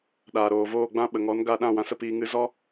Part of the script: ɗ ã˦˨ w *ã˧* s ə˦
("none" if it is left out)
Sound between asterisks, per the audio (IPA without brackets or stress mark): ã˧